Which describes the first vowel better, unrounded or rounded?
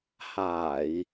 unrounded